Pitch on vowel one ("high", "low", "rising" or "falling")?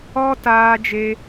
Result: high